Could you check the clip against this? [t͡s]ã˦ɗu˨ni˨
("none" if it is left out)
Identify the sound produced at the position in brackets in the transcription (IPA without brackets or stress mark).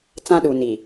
t͡s